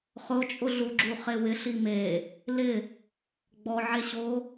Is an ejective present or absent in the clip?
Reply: present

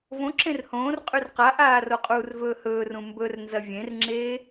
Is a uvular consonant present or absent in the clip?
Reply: present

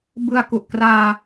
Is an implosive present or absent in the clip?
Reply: absent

